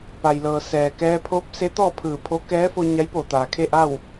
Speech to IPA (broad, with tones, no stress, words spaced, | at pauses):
pa˩jlɤː˩ sɛː˩kɛː˧pʰoː˧˥p̚ se˧˥t̪ɔː˥˨pʰɯː˧˩pʰo˧˥ kɛː˧˥fo˧ ɲa˧˥jpoː˧˩ t̪aː˩kʰe˥˨ʔa˥˨w